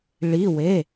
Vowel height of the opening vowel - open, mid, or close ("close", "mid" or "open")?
close